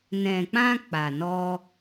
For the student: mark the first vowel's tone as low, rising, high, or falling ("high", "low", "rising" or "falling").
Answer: low